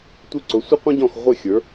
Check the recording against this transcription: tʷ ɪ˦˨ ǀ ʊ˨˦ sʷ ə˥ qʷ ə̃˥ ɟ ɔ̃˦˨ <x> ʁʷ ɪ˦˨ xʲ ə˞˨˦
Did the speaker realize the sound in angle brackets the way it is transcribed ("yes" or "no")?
yes